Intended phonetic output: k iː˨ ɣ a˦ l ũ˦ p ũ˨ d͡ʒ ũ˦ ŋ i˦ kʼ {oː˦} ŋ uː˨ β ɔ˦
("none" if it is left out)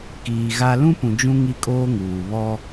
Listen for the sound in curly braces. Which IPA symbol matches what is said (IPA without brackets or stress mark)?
oː˦